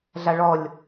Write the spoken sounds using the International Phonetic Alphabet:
ɮaɭɔlʲ

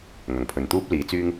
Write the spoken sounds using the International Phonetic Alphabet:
ŋɐ˨˩ŋpʰɵ˨nt̪uː˥p̚ liː˨˧t͡syː˥ŋ

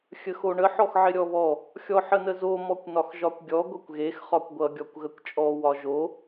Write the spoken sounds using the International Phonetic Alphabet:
xʲəxoɳə ħɔxʕɪɾʲɔβɔ | xʲɔħənəzo mɔkʷnɒxʒɒkʷɡʲɔ ɡʷʌkʷɣex χɒkʷɡʷʌ ɡʲɔkʷɣəkʷt͡ʃʼɔ wɒʒo

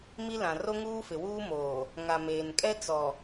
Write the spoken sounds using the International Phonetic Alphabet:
mi˦lã˨ ro˦ŋuː˦fɪ˨wuː˦ moː˨ | ŋa˨meː˨nkʼɛ˦ t͡sɔ˨

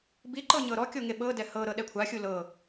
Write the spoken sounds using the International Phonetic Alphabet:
biǃɤ ɲɤɾɔkʲo ŋeɓɤdɛ hɤɾɤ ɗɛkʷʰaxʲu lɤ

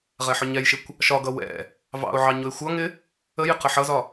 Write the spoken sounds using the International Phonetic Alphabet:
ʁɛħʊɲɛjʃɪkʷ | ʃɒɡʌ wɛ̰ | vɑ̰ʊ̯ʕɑ ɲʊɪ̯xʷʌŋɪ | əjɪ qəħʌzɒ

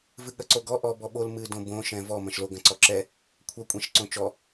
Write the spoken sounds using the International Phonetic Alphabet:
vɨɠɐǀoɡɔ ʔɔ bɔɓol mɨ dõbõ ʃɛ̃vɔ mɐ̃ʃlo ɡɐ̃ǀɔǁɛ | kʷʰɐ kʷʼɛ̃ʃǀõt͡ʃɔ

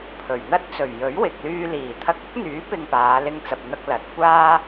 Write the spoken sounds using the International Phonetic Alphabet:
pʰɵ˨˩ɥn̪ɐ˥t̚t͡sɵ˨˩ɥ jɵ˨˥ɥwɪ˨k̚lyː˧ liː˨˩t̪ʰɐ˧k̚ɐ˥k̚n̪yː˨˥ pɪ˧ŋpaː˨˧lɪ˧ŋt͡sɐ˨p̚ n̪ɐ˧k̚ lɐ˨t̚ kʷaː˥

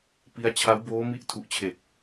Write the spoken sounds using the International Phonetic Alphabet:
pi˦˥a̯ t͡ɕʰa˦˥wboː˦˥mi˦˥ʔ tʰu˨˩ʔt͡ɕʰe˨˩k̚

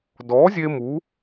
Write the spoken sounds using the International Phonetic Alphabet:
dɔ˩˥ zʲe˦mu˩˥

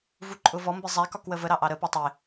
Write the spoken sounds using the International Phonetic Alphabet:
vuǃʼʊvɔ mbizˤæk ɒkwəvə ɾɑʔɑɾə putˤɪ

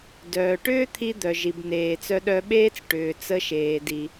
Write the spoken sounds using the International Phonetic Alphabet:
dœː˩ʈʏː˥t̪ʰi˧ d̪œ˩ʒi˩b neː˩t͡sœ˧ɗœ˧ɓeː˥t͡s ʈʏː˩ t͡sə˧ʃeː˩di˩

